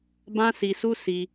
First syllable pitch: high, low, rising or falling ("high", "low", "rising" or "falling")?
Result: high